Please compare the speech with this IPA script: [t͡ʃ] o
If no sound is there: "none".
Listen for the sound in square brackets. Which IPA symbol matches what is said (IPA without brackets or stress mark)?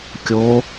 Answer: kʲ